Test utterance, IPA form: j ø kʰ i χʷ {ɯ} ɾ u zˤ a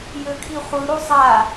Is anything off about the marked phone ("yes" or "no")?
no